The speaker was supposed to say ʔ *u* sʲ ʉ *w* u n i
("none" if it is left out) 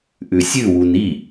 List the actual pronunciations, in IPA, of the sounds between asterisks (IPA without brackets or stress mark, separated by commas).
ʉ, w